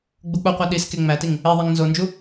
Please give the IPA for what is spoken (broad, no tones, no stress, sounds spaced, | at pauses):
ɡ͡b u k͡p o qʷ æ ɗ i s k e ŋ͡m æ t i ŋ | e ðˤ e ŋ n z o n d͡ʒ u